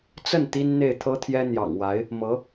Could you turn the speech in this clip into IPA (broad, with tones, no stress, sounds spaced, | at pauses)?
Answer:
t͡s ə˥˩ n t̪ i˥ n n̪ e˥˩ ɪ̯ t̪ʰ ɤ˥ t̪ʰ j ɛ˥ n̪ j ɑ̰˨˩ ŋ w a˧˥ ɪ̯ | m ɤ˧˥